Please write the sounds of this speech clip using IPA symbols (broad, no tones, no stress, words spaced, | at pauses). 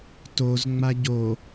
tozŋ͡ma ɟo